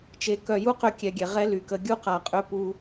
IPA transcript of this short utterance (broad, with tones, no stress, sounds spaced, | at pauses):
t͡ʃ e˨ k œ˨ j u˦ q ø˧ kʲ ɛ˨ ɡʲ ɛ˨ ʁ ɛ˦ l y˨ k ə˧ ɡʲ u˦ q a˨ qʼ ø˦ p u˦